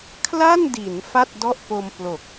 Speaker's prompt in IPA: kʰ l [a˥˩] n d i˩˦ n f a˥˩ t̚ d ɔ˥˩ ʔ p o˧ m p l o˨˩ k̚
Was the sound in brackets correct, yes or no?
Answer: yes